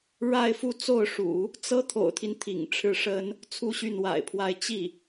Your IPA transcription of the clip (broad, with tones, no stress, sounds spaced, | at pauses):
ɻ a˥˧ ɪ̯ f u˥˧ t͡s o˥˩ ʊ̯ ʂ ṵ˨˩˦ | t͡s ɤ˥ t̪ʰ o̰˨˩ ʊ̯ t̪ʰ i˦ n t̪ʰ ḭ˨˩ ŋ ʈ͡ʂʰ ɻ̩˥˩ ʂ ə˥ n | t͡sʰ u˥˧ ɕ y˥˩ n w a̰˨˩ ɪ̯ pʰ w a˥˧ ɪ̯ t͡ɕ i˥˩